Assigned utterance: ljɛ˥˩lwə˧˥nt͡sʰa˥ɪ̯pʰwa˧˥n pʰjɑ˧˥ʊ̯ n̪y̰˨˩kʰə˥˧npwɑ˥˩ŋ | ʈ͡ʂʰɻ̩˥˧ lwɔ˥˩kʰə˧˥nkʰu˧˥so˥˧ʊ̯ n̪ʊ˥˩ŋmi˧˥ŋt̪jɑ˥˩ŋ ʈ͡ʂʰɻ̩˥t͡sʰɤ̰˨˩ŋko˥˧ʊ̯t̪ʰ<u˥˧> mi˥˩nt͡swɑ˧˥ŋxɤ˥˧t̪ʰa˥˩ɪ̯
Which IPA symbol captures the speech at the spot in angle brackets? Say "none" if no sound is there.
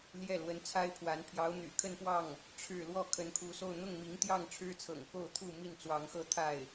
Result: u˥˧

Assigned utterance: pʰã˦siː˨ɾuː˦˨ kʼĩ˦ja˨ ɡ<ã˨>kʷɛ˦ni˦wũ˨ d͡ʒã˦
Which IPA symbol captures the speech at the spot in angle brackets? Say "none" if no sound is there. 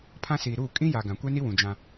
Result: ã˨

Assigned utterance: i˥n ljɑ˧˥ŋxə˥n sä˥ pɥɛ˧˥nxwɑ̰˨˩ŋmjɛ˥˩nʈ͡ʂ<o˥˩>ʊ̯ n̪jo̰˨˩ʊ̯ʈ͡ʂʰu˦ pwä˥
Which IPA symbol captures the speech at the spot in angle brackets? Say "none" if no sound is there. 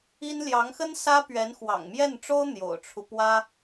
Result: o˥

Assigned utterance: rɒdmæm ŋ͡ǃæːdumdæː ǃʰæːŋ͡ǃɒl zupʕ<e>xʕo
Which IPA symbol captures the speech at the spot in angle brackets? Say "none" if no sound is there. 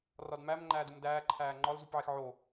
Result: e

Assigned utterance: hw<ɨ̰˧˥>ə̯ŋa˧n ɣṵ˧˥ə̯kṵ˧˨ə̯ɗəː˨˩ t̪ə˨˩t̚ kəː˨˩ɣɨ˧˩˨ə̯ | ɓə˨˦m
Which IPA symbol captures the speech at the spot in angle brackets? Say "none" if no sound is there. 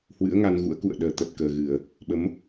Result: ɨ̰˧˥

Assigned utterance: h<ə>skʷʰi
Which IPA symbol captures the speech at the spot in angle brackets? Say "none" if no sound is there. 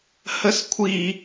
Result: ə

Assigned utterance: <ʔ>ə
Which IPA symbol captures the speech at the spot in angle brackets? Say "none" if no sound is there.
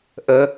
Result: ʔ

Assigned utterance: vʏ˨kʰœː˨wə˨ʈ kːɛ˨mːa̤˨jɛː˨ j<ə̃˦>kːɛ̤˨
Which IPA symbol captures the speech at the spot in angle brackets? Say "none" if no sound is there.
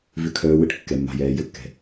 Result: ə˦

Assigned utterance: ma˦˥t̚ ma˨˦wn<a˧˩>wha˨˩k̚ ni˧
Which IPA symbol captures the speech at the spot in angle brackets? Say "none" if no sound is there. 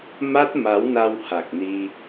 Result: a˧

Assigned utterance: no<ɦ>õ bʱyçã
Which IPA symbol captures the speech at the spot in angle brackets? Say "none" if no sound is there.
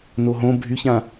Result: ɦ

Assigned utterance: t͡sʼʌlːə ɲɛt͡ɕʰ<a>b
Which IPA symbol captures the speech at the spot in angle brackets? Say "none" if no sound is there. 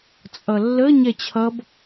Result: ʌ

